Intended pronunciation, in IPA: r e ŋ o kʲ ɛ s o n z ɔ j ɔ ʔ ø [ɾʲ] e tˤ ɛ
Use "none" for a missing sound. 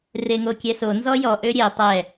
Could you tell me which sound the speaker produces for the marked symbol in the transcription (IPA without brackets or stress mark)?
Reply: ɾʲ